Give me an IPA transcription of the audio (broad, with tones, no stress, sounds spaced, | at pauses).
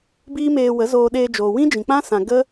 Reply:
b iː˦ m eː˧ w ə˨˦ z oː˧ ɗ eː˧ d͡ʒ oː˨ w ĩ˦ d͡ʒ ĩ˨ k͡p ã˦ s ã˨ ɡ ə˦